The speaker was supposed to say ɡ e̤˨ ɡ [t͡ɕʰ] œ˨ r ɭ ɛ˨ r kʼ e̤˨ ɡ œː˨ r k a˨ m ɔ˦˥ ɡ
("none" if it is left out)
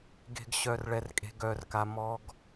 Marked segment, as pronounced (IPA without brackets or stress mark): ɕ